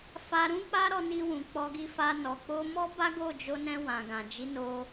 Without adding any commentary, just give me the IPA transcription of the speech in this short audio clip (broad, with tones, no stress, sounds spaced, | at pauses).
f a˧ ɾ ũ˦ k͡p a˦ ɾ ɔ˧ n i˧ w ũ˨ k͡p ɔ˧ ɡ i˧ f a˧ n ɔ˨ k͡p o˧ m ɔ˦ b a˦ ɡ o˦˨ d͡ʒ o˧ n ɛ̃˧ w ã˨ ɡ ã˨ d͡ʒ i˨˦ n o˧